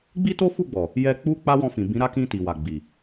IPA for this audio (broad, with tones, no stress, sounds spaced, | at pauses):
ɡ͡b i˦ t o˦ f u˦˨ ɡ͡b ɔ˨ | j ɛ˧ k͡p u˦ k͡p a˦ w ɔ̃˧ f ĩ˨ b ĩ˨˦ ɾ a˦˨ k ĩ˧ t i˨ w a˨ ɡ͡b i˨